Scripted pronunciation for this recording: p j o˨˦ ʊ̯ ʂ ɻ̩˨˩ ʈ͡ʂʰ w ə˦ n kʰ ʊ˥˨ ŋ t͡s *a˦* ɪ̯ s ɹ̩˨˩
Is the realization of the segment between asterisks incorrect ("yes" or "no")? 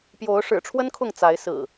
yes